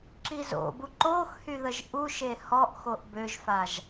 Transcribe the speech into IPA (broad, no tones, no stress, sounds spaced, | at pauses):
ǁ i z o̰ b u ǃ o x h y ð ə ʒ ʔ u ʃ e h ɔ ʔ x o ʔ b ø ʒ f a ʒ